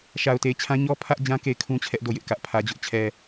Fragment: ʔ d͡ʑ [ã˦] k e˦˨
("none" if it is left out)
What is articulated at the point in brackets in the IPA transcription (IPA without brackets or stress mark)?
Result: ã˦